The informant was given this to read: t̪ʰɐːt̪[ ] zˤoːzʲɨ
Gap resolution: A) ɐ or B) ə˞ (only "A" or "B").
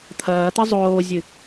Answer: A